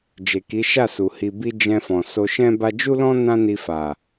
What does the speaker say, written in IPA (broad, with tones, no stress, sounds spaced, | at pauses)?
d͡ʒ e˨ k i˨˦ ʃ a˦˨ s u˨ h i˧ b i˦ d͡ʒ ɛ̃˧ f ɔ̃˨ s o˧ ʃ ɛ̃˦ b a˧ d͡ʒ u˦ l ɔ̃˦ n ã˦ n i˧ f a˨